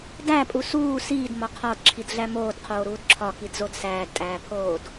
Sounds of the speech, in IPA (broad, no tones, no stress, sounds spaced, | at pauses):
d æ pʼ u s uː s iː d m ɒ qʰ ɒ d ǁʰ i d ɮ æ m oː d qʰ oː ɾ uː d ǁʰ ɒ k i d z o d s æː d tʼ æː pʰ oː d